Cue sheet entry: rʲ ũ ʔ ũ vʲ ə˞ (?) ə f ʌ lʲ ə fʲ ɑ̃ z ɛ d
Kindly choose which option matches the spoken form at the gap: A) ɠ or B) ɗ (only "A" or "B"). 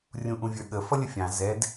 A